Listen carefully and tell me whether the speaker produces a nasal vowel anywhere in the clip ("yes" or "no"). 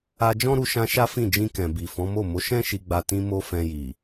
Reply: yes